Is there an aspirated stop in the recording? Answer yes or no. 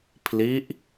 yes